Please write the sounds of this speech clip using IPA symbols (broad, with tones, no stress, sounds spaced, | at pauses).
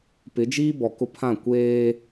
p ɪ˨˦ d͡ʒ iː˦ b ɔ˨ k ʊ˦ pʰ ã˦˨ kʷ eː˦